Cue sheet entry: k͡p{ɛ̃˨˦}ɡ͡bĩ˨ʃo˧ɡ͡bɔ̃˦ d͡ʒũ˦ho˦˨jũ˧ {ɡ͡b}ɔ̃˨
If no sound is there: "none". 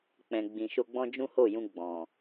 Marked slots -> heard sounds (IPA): ɛ̃˨, ɡ͡b

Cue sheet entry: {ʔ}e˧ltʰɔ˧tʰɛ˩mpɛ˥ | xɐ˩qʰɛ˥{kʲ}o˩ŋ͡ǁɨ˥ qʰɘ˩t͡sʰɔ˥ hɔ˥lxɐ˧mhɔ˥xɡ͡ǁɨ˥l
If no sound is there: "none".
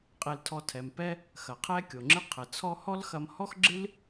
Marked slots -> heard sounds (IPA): qʼ, kʲ

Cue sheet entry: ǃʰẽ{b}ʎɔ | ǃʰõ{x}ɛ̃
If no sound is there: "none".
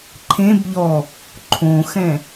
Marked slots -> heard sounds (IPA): b, x

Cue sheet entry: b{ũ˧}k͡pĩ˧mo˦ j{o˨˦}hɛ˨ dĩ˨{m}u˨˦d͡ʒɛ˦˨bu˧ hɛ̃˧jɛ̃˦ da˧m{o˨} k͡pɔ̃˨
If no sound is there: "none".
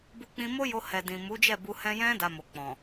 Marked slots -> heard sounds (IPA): u˧, o˧, m, o˨

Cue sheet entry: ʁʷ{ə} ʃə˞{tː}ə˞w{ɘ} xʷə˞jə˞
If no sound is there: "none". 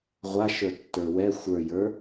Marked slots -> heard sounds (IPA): a, tː, ɛ

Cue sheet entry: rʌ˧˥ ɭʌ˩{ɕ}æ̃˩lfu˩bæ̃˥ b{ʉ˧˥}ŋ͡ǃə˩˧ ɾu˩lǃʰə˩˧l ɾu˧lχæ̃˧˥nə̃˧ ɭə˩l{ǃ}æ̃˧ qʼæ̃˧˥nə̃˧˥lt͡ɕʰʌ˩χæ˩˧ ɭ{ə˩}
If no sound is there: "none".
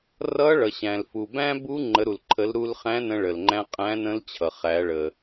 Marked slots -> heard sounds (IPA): ɕ, u˧˥, ŋ͡ǃ, ə˩

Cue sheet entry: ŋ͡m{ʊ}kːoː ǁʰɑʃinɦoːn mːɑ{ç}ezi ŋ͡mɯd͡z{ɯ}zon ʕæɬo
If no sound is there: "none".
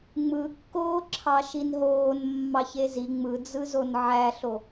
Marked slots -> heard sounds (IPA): ɯ, ç, ɯ

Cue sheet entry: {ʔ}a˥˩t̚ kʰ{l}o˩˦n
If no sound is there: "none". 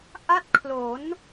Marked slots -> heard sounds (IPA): ʔ, l

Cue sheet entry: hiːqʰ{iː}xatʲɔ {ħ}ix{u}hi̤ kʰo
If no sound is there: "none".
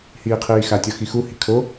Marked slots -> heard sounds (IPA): iː, x, u

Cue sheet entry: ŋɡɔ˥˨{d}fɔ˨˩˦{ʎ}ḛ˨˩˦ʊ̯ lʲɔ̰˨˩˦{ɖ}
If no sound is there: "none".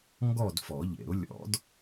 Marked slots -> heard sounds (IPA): d, ʎ, d

